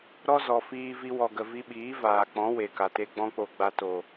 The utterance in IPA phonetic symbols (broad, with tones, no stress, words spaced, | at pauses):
ɾɔ˦zɔ˨ fiː˧ vi˧wɔ˨ɡə˨ vi˧ɓiː˨˦ vaː˨k͡pɔ̃˨˦ we˨ka˨te˦ ɡ͡bɔ̃˦k͡po˧ ɡ͡ba˧ to˨